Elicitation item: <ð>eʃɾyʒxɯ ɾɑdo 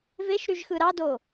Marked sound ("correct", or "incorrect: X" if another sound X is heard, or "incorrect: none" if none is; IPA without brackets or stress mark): incorrect: v